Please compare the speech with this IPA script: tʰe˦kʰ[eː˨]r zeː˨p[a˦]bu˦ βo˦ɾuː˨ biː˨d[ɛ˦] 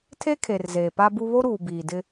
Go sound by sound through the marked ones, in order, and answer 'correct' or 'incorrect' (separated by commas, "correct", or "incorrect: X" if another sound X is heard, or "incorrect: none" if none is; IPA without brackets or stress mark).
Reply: incorrect: e˨, correct, incorrect: ɪ˦